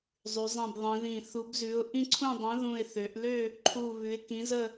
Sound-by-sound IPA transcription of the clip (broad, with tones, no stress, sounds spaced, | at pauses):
zˤ ʉ˧˥ zˤ ĩ˥˧ b ðˤ ĩ˧˥ ð ĩ˥˧ θ u˧˥ b z ʉ˧˥ ʊ̯ ʔ ĩ˥˧ ǀʰ ũ˥˧ dˤ ə̃˧˥ ð ũ˥˧ ɪ̯ θ ø˧˥ ʔ l ø˥˧ | ǃʰ u˥˧ β ʉ˧˥ ɪ̯ k ĩ˧˥ z ə˥˧